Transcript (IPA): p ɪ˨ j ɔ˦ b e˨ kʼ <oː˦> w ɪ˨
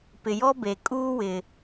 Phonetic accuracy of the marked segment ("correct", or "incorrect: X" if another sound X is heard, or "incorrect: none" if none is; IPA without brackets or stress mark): incorrect: uː˦